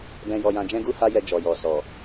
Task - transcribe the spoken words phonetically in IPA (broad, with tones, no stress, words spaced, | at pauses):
bɛ̃˧ jɔ˧jã˧ d͡ʒɛ̃˦ɡu˦ha˦jɛ˧ d͡ʒɔ˨jɔ˨ sɔ˨